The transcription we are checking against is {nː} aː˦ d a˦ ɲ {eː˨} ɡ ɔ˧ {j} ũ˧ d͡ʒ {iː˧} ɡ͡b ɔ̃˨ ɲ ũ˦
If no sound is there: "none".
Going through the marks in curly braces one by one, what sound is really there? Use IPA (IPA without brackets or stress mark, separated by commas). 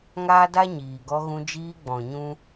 ŋ, iː˨, ɣ, iː˧